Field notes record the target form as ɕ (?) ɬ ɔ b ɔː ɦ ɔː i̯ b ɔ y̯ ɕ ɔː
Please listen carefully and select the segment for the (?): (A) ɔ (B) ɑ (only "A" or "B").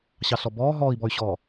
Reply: B